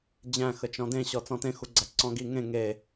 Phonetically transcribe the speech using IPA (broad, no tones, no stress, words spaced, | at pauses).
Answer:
d͡ʑæ̃xə t͡ʃɔ̃dẽɕɔ t͡sɔ̃tẽxuɡ͡ǀæ ǀɔ̃ɡi ŋẽ ŋe